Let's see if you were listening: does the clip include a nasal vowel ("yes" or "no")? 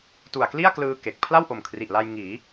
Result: no